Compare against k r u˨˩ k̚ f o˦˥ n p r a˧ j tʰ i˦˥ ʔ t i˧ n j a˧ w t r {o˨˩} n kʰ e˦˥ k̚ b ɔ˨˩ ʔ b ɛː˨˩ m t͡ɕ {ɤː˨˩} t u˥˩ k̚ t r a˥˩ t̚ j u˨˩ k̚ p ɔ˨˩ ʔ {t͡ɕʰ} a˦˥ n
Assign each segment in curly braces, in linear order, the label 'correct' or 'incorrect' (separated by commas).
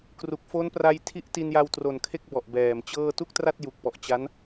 correct, incorrect, incorrect